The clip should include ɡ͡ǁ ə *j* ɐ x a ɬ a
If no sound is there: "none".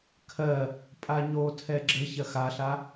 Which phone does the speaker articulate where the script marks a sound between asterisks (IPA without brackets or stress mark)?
ç